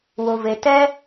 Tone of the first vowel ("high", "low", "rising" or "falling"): low